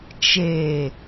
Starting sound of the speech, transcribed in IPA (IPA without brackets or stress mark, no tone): t͡ʃ